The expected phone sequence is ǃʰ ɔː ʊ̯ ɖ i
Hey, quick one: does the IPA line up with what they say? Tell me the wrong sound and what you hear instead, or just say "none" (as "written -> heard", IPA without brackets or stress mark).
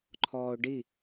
none